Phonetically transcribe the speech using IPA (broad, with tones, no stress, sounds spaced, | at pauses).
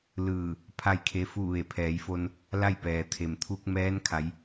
l ɯː˧˩ | pʰ a˥˨ j kʰ e˧˥ f u˥˨ ʋ e˧˩ pʰ ɛː˩˧ j f o˧ n | l a˥˨ j p ɛː˩ t̪ʰ e˩ m t̪ʰ u˧ k̚ m ɛː˧˥ n kʰ a˩˧ j